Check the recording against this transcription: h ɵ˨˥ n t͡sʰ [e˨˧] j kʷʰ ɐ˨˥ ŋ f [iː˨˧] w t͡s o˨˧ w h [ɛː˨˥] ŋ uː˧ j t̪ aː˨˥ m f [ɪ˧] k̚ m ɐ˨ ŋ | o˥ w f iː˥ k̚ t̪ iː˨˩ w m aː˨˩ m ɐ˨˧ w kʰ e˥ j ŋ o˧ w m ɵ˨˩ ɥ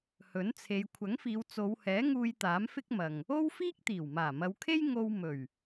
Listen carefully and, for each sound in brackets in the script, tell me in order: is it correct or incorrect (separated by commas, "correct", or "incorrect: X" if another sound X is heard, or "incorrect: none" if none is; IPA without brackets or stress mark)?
correct, correct, correct, incorrect: ɪ˥